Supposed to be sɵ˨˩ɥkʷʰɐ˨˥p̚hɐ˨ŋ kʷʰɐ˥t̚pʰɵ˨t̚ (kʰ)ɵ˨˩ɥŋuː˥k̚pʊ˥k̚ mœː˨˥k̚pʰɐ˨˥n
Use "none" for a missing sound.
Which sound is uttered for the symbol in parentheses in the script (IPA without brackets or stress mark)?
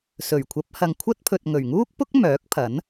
ŋ